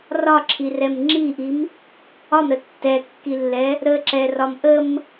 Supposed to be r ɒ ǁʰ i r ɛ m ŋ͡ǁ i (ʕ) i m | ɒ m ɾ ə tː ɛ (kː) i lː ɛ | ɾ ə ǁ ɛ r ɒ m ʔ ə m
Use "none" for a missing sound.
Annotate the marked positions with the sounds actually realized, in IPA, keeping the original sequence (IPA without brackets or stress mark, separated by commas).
ʔ, kː